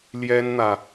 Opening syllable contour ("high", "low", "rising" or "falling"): high